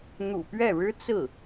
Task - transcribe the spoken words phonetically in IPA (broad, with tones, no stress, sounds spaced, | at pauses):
n̪ ṵ˨˩ p ɥ ɛ˥˩ ɻ ɻ̩˥ t͡s ɹ̩˥˩